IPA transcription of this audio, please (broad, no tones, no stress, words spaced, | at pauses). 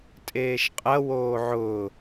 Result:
tʼeːʃqʼɐ woːʕʊː